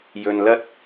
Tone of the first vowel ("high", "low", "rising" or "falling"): low